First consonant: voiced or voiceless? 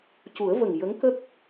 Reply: voiceless